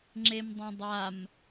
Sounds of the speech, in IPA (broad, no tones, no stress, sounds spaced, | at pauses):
ŋ͡ǁ e m dˤ ã dˤ a m